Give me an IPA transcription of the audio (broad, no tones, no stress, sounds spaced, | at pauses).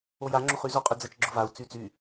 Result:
o j a ŋ͡ǁ o χ y z o qʼ y d͡z ɐ t͡ʃ ɡ͡ǁ ʊ v a u̯ t͡s y t͡s y